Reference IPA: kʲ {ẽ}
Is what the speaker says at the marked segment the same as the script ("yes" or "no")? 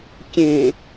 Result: yes